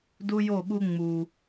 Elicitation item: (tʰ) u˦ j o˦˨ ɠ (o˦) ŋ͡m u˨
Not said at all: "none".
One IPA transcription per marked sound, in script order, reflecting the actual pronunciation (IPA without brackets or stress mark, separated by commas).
d, u˦